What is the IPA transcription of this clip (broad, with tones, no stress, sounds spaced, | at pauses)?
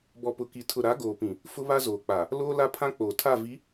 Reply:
b ɔ˨ p ʊ˨ k i˨ tʰ ʊ˨ ɾ a˨˦ ɡ oː˨ p ĩ˨ | f ʊ˦ β a˦ z oː˨ k͡p a˨ | l oː˦ l a˦ pʰ ã˦ k͡p oː˨ tʰ a˦˨ v i˨˦